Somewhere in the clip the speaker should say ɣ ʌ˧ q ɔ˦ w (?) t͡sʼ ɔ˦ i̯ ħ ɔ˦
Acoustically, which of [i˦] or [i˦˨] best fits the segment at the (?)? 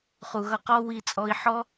i˦˨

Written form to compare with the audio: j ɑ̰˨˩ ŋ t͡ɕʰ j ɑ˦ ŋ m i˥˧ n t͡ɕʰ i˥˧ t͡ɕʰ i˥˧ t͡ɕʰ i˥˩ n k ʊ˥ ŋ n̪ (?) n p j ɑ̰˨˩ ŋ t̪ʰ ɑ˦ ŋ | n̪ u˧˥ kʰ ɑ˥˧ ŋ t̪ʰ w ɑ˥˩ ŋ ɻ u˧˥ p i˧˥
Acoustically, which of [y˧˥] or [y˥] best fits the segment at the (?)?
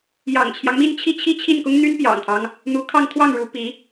y˥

